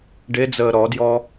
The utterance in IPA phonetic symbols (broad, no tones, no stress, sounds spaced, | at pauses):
ɖ e d͡z əː ɾ ɔ d j ɔ